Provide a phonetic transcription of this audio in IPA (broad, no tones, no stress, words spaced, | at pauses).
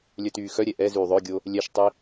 lʲœtyːxœɾʲɛ ʔɛ zyːðˤœɡʲo | lʲɛʃtˤi